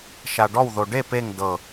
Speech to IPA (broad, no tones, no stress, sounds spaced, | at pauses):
ʃ a ɖ ɔ w ð o ɖ e p e ŋ d ɤ